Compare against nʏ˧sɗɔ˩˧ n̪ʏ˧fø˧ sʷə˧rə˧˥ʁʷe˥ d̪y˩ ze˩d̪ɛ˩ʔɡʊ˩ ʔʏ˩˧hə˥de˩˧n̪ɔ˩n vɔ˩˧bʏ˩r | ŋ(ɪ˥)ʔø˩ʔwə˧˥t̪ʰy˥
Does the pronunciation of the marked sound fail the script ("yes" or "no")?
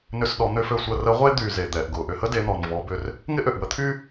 no